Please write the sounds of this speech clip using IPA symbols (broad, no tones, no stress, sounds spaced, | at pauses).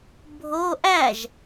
bʱ o ʔ æ ʒ